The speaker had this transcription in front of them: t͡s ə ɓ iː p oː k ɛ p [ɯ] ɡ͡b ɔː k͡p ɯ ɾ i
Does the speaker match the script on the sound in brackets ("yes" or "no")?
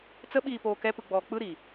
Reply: yes